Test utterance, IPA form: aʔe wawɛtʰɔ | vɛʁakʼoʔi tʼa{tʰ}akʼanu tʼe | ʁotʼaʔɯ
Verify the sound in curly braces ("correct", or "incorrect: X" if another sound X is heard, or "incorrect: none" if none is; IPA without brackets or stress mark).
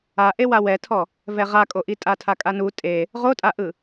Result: correct